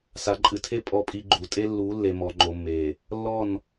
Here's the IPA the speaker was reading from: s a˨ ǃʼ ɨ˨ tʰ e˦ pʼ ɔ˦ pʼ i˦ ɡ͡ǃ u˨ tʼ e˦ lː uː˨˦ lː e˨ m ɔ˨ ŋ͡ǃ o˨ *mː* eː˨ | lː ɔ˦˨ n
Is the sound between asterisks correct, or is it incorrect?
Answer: correct